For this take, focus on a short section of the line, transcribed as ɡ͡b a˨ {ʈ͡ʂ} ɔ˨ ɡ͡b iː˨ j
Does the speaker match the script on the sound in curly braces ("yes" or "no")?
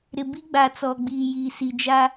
no